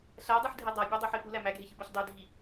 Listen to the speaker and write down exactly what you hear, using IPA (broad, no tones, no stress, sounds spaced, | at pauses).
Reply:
ɬ æ dˤ ɯ ħ dʱ e dˤ ɑ bʲ ɑ dˤ o ħ e p u l æ m æ ɡʱ e ç ɯ b ɑ ç dˤ ø dʱ i